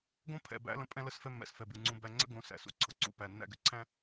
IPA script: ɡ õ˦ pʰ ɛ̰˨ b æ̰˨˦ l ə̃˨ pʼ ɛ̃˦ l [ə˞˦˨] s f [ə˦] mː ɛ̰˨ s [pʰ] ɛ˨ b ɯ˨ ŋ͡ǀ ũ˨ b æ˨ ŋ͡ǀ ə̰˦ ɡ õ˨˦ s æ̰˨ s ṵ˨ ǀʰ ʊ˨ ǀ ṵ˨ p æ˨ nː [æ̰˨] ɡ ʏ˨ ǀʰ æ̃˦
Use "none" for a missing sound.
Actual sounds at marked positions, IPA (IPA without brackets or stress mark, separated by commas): ə˦˨, ɛ˦, f, æ̰˦˨